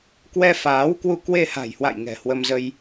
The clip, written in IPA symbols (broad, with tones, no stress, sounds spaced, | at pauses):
k w ɛ˧ f aː˨˦ w k w u˧ k w e˧ h a̤˨˩ j h w a̰˧˨ j ŋ ɛ̤˨˩ h w ə˧ m z ə˧ j